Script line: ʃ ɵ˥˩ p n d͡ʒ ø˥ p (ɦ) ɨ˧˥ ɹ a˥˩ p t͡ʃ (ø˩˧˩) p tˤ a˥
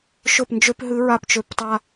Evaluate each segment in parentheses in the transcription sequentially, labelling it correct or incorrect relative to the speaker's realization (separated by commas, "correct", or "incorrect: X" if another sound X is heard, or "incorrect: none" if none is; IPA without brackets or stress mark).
correct, incorrect: ø˥˩